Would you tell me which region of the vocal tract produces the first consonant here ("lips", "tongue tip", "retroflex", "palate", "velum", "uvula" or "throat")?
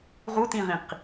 uvula